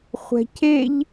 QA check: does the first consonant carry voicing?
no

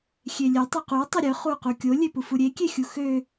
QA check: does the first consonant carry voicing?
no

